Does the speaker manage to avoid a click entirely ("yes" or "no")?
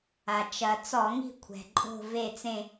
no